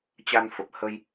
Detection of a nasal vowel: absent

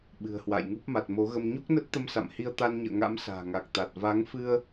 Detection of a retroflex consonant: absent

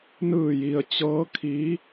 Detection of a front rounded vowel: absent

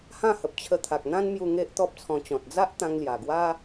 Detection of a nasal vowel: present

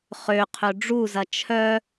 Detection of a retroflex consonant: present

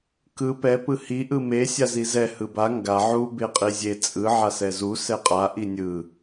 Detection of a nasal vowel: absent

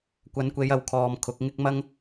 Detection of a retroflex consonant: absent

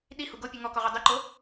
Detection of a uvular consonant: present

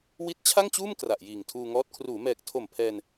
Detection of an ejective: absent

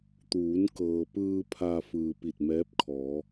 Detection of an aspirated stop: present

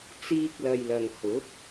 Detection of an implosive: absent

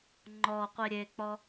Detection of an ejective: absent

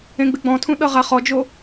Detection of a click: absent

